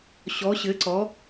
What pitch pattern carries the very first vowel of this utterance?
rising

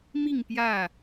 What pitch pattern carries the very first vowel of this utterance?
falling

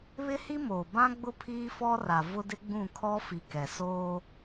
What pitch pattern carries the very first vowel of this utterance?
high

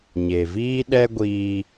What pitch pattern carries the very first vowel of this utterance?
low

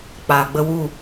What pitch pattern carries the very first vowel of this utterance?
low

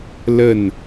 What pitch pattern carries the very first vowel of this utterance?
falling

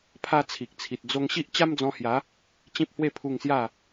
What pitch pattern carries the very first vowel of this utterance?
high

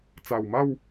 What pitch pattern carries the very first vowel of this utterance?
low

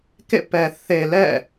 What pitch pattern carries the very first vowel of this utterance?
falling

